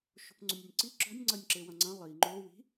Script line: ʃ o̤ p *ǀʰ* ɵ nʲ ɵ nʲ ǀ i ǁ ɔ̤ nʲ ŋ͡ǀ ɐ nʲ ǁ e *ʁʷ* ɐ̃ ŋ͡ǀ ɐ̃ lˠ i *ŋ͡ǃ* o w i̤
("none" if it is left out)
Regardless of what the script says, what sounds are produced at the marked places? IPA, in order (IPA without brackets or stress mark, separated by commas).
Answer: ŋ͡ǀ, w, ŋ͡ǃ